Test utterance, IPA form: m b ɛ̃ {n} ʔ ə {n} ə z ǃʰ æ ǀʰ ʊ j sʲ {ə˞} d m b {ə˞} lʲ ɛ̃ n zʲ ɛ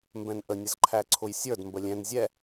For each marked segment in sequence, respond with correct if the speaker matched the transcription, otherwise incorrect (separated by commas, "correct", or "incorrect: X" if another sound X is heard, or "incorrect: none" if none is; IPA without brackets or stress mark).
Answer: correct, incorrect: nʲ, correct, incorrect: ə